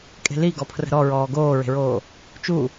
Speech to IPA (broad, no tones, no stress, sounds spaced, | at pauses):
kʼ e̤ l i ɡ ɔ pʰ r ə̤ ɾ ɔ ɹ ɔː ɡ oː ɹ e̤ ɹ oː | t͡ʃ u